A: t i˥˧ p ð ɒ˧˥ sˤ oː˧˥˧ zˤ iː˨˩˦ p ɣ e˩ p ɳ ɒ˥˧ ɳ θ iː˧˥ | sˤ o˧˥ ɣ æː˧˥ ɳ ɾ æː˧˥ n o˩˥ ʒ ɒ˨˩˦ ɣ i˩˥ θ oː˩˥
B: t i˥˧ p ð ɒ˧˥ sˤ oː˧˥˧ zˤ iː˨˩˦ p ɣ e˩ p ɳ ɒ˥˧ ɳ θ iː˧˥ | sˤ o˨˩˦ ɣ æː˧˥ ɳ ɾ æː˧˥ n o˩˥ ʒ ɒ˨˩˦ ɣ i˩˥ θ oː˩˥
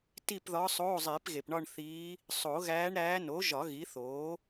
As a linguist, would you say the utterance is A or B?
B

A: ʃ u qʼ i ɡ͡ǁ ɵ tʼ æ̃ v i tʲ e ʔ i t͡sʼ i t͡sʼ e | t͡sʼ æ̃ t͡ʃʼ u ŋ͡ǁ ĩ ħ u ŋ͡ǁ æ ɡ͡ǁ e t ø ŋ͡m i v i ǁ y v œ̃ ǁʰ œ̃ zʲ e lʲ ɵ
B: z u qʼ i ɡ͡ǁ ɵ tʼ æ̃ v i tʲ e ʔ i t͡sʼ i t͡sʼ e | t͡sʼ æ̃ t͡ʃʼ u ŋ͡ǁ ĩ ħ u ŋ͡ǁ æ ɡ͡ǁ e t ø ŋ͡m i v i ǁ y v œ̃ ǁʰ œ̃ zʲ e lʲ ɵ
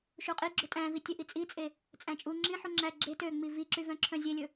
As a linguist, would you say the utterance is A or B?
A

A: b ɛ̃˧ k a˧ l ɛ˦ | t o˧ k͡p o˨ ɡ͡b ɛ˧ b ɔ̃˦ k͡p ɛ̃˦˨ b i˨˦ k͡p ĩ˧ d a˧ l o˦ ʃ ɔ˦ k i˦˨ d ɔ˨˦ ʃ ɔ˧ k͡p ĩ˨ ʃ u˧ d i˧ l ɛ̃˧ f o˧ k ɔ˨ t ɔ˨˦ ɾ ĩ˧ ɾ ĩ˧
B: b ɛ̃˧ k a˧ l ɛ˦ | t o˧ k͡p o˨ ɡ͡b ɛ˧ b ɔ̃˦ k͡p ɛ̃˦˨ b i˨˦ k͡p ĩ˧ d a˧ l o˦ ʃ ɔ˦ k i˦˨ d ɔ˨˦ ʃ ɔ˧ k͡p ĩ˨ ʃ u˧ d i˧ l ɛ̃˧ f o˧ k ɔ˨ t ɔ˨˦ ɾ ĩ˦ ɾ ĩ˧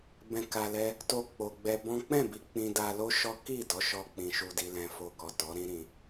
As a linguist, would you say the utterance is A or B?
B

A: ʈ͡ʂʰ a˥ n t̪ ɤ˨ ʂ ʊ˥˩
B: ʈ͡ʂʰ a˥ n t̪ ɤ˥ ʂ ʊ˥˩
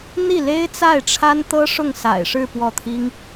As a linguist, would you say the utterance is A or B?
B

